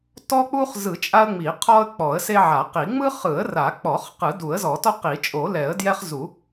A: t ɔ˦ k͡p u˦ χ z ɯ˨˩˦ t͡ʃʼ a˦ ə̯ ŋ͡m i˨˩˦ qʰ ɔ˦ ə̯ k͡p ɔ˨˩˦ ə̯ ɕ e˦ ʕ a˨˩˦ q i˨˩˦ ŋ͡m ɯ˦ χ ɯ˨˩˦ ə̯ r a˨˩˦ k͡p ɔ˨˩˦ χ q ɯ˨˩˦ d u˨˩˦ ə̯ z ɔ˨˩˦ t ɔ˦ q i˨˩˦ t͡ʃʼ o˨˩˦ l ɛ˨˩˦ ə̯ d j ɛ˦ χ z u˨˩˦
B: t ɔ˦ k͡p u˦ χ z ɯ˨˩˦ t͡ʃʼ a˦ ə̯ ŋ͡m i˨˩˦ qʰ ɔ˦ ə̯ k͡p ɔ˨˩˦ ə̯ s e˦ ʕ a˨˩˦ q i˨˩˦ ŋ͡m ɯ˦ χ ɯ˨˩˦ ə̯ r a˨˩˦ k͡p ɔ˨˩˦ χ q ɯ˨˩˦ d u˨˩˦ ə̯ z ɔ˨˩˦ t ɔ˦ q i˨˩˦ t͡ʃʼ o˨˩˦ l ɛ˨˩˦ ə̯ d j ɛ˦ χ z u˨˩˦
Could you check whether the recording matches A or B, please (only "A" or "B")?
B